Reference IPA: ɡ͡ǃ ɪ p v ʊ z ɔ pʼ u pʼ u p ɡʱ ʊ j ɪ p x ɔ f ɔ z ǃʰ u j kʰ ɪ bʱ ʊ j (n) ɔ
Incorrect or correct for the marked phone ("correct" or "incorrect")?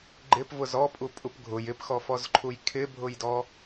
incorrect